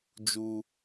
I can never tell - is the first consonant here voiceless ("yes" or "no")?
no